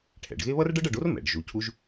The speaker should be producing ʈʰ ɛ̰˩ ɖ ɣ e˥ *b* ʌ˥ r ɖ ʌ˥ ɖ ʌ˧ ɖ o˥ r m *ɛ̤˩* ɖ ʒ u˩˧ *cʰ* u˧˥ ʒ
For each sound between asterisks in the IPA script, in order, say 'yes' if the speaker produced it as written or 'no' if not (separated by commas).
no, no, yes